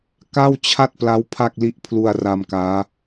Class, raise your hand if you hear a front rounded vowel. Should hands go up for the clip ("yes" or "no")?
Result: no